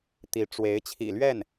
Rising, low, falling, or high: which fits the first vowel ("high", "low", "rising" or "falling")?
rising